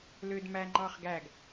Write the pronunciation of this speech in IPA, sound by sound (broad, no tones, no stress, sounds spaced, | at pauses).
l ø d m æ ŋ͡ǃ ɑ χ ɡ æ ɡ